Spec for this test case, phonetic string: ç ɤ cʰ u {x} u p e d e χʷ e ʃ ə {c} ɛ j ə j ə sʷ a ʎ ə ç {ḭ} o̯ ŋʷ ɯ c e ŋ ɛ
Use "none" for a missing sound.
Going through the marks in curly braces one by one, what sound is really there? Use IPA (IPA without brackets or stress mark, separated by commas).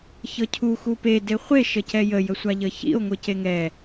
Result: x, c, ḭ